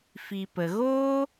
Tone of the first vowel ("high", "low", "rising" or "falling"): low